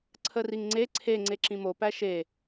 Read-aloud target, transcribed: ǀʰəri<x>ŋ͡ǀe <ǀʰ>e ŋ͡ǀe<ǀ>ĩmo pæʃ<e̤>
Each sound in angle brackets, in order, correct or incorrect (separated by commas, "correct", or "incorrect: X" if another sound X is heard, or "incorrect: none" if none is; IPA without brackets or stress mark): incorrect: ŋ, correct, incorrect: ǁ, incorrect: e